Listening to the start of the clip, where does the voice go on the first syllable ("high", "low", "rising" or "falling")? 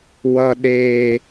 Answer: high